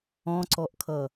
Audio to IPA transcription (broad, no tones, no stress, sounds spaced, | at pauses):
ɔ̃ ǀ ɔ ʔ kʰ ʌ